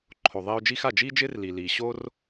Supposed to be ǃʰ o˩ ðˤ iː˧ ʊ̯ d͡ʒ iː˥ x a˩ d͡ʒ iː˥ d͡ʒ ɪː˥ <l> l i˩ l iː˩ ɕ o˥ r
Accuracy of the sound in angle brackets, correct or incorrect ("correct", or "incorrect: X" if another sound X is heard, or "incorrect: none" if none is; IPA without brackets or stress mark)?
incorrect: r